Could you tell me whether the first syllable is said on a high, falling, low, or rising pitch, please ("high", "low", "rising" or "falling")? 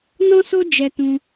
high